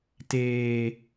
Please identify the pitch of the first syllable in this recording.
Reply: low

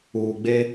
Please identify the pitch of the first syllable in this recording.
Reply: low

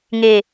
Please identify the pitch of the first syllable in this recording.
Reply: low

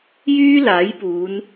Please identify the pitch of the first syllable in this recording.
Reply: high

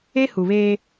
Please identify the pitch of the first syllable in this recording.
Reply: high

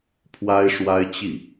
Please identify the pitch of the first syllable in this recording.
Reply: high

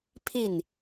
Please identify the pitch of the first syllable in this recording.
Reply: falling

